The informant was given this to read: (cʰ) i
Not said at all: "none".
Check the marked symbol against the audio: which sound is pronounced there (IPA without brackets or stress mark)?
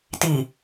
t